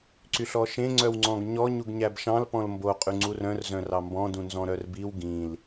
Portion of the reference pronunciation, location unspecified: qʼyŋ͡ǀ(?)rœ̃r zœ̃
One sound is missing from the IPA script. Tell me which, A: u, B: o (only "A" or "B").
A